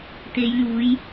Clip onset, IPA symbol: t̪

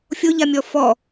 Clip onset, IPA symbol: fʲ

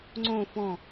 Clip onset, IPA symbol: ŋ͡ǀ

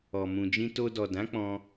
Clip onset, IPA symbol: ɔ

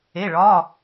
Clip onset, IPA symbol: e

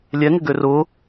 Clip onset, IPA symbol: lʲ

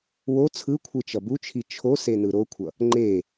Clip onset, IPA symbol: w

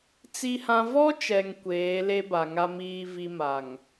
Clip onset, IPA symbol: t͡s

